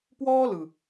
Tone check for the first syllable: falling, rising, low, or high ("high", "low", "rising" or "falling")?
high